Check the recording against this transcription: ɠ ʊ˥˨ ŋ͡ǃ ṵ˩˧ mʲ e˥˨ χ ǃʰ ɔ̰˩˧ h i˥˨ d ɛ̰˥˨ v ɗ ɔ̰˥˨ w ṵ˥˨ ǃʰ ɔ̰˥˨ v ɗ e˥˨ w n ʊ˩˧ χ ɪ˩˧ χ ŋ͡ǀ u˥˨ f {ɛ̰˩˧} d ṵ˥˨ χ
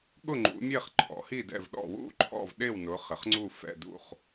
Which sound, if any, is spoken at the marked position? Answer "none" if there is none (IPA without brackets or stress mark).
ɛ̰˥˨